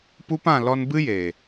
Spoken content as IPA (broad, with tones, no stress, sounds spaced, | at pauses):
p u˦ p ã˦˨ l ɔ˧ n b ɨ˦ j e˨